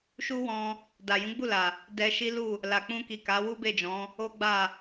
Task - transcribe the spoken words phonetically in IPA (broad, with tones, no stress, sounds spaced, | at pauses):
ʃ u˦ w ɔ̃˧ | d a˨ j ũ˨˦ ɡ͡b u˦˨ l a˨ | d ɛ˧ ʃ i˦ l u˦˨ | l a˨ k͡p ũ˧ k i˨ k a˨˦ w u˦ b e˦˨ d͡ʒ ɔ̃˨˦ | o˦ ɡ͡b a˦˨